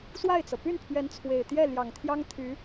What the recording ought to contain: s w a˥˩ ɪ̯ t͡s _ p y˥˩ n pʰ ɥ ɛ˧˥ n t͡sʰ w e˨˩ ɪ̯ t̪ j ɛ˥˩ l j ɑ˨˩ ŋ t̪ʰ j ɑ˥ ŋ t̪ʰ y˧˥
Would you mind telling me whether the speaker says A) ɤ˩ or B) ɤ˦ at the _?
A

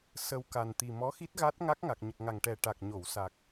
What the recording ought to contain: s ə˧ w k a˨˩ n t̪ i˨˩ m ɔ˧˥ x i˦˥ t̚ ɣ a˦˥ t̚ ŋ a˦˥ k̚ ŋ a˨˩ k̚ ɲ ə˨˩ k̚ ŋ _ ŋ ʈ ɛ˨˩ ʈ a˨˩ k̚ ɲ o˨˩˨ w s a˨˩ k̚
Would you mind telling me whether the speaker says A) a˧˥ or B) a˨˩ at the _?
B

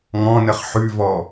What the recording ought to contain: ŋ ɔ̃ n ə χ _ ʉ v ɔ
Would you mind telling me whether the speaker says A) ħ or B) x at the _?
A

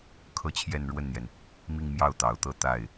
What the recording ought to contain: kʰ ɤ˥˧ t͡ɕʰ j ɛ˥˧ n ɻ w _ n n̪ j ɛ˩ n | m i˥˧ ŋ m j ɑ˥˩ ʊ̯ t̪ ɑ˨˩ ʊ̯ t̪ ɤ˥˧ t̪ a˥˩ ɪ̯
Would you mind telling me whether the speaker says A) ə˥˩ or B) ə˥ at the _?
A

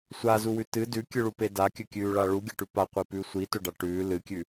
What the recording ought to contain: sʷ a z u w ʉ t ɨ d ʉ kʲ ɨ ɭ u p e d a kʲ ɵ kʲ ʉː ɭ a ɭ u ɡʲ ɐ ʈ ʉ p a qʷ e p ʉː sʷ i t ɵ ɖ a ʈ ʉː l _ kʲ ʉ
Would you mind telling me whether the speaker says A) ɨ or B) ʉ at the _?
A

